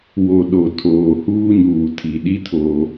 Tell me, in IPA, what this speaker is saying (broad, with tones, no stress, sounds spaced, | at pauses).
w o˨ ɗ o˨ tʰ oː˨ h uː˦ ɲ uː˨ tʰ i˨ ɗ i˦ tʰ oː˦